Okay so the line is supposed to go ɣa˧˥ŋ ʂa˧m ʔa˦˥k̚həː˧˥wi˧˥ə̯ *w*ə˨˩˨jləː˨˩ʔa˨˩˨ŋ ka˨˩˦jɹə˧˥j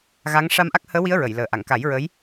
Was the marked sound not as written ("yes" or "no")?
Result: yes